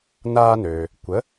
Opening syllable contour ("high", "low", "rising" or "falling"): high